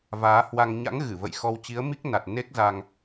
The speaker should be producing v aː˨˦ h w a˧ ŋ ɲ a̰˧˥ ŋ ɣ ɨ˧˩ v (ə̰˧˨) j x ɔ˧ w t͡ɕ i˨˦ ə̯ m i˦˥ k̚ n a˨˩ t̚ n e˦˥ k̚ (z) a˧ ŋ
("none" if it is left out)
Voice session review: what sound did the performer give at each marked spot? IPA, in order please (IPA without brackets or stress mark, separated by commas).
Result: ə̰˧˨, z